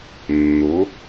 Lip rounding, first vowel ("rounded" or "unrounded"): rounded